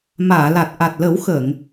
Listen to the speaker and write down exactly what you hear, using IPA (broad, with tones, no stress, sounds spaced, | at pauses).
m aː˨˩˨ l a˨˩ t̚ ʔ a˨˩ t̚ l ə˨˩˦ w x əː˨˩˨ ŋ